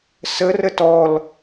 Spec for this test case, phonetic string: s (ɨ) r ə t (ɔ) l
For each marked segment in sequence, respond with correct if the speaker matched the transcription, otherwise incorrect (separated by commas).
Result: incorrect, correct